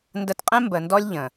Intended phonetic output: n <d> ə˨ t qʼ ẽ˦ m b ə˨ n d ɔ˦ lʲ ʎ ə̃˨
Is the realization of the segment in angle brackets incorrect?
no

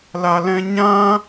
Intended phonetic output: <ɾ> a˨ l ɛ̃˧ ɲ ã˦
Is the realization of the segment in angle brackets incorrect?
yes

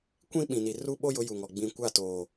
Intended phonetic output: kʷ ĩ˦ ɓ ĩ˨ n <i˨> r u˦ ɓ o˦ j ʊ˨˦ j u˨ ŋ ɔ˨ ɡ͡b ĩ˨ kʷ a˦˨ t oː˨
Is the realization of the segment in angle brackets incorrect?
no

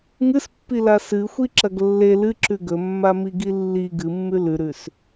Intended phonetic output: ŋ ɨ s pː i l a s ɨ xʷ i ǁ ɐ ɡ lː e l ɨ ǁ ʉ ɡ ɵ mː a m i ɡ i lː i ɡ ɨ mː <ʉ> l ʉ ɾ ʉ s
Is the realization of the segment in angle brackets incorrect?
no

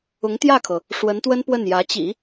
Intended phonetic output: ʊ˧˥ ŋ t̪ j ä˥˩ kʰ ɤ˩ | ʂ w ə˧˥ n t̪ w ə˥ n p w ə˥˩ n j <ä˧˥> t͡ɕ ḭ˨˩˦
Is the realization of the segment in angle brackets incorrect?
no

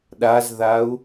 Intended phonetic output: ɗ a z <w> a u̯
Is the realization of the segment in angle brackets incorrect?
yes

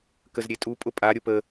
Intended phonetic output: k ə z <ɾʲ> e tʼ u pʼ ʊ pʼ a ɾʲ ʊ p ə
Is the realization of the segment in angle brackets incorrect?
no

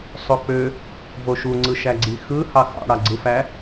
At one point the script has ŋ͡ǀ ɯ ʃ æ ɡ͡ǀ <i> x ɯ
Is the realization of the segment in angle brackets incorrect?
no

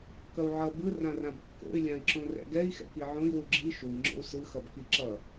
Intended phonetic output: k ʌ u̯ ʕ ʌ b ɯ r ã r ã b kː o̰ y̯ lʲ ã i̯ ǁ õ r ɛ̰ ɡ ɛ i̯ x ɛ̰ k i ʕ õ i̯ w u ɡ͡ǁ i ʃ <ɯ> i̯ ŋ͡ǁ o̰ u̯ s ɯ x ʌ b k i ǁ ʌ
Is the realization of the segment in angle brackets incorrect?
yes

